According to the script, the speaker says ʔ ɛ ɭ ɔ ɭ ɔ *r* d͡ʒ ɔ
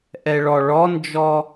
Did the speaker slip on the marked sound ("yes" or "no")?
yes